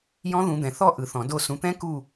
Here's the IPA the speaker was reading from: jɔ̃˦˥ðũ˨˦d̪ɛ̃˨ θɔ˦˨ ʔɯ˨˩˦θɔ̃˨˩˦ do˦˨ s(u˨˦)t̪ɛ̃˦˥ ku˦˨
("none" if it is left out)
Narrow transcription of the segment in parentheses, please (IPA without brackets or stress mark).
ũ˨˦